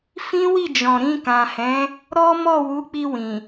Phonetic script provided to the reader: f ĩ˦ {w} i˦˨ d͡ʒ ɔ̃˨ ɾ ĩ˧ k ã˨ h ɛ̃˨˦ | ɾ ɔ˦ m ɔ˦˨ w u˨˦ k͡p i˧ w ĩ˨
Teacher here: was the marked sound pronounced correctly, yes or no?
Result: yes